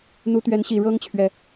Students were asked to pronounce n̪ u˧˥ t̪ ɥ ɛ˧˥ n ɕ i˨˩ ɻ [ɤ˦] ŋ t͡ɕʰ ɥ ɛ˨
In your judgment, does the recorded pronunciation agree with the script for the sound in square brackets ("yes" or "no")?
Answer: no